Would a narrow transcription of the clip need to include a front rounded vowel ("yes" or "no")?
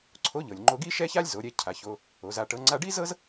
no